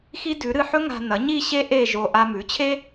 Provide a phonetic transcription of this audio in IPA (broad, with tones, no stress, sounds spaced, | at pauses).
x i˥ d ʉ˩˥ ɾ ɨ˧ ħ ɵ˥ ŋ a̤˧ n ɐ˩˥ ɲ i˥˧ ɕ e˥ ʔ e˥˧ ʒ o˧ ʔ a˧ m ʉ˩˥ t͡ɕʰ e˥